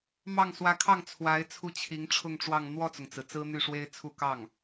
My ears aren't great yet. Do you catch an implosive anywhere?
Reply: no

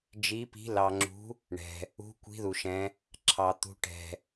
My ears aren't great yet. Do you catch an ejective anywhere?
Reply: no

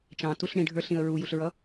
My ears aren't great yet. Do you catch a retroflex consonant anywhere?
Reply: yes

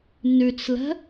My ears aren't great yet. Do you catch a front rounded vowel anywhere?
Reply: yes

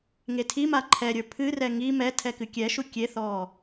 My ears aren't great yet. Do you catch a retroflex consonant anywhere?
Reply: no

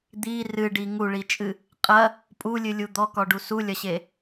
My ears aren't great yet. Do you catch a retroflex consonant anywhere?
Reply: yes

